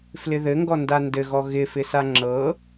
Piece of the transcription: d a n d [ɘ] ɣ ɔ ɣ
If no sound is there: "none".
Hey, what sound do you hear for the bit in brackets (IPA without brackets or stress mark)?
ɘ